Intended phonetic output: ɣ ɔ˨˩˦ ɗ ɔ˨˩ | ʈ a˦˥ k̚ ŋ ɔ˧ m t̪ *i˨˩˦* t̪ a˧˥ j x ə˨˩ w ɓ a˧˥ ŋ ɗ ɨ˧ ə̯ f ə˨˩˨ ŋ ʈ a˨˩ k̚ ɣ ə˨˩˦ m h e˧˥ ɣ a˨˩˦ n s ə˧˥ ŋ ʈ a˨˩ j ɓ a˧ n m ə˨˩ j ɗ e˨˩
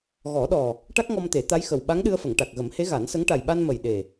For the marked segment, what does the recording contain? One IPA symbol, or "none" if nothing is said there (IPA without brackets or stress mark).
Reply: e˨˩˦